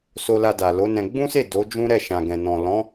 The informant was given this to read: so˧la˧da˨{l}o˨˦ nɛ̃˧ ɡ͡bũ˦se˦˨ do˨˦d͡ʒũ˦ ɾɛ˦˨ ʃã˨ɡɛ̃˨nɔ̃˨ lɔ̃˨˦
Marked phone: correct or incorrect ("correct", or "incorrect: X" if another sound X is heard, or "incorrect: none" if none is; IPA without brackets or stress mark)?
correct